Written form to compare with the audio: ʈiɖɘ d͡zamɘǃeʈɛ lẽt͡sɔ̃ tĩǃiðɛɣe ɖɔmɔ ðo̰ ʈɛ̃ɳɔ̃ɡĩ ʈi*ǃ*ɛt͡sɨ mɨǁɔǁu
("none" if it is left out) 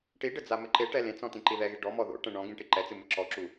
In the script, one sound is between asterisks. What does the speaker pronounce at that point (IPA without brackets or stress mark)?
ǃ